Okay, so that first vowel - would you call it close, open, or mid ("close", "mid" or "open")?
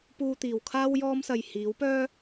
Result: close